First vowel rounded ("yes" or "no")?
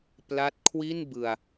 no